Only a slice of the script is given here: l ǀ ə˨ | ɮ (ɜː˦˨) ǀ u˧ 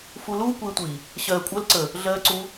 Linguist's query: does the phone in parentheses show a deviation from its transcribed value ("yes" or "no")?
yes